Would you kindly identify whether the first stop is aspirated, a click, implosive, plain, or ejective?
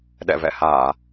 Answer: implosive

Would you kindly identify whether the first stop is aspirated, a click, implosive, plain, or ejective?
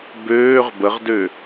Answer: plain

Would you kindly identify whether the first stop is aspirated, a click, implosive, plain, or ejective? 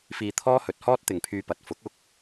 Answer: aspirated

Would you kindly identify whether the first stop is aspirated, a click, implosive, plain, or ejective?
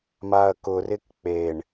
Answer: plain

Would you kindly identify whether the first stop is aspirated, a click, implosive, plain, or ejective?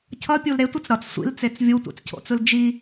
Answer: aspirated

